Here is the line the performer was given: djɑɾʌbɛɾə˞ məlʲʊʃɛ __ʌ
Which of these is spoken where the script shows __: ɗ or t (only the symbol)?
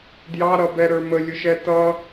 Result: t